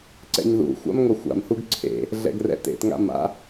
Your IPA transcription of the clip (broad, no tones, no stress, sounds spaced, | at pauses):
ǀ ɛ̰ ɲ ð ṵ xʷ a̰ m ŋ o xʷ a̰ m h u ɡ ǀʰ ḛ | ɮ ɛ̰ ɡ r ɛ̰ t ḛ t ŋ a̰ m a̰